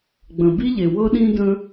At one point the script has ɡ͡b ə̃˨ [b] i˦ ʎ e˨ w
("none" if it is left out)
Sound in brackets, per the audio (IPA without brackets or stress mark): b